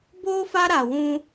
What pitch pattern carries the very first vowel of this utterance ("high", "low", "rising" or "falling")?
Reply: high